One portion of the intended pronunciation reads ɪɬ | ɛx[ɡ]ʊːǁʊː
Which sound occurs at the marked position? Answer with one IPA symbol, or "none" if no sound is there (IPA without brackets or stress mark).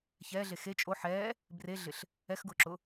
ɡ